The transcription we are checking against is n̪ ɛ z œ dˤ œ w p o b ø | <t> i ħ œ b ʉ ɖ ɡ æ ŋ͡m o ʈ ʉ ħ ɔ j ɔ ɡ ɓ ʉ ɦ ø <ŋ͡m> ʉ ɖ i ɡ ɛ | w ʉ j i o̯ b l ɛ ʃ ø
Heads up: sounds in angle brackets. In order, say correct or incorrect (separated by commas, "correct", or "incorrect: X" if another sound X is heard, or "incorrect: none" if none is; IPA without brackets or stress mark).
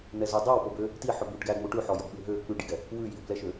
correct, incorrect: k͡p